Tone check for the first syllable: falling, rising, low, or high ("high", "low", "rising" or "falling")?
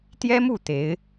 high